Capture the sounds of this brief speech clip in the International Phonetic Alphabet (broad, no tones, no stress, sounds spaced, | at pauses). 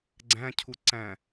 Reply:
ɡ͡ǀ æ̃ cʰ u ǀ æ̃